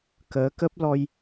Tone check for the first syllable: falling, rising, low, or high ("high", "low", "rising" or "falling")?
rising